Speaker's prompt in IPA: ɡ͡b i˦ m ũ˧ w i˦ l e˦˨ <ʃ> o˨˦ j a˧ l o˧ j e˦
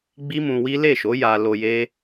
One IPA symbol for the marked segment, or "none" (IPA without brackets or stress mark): ʃ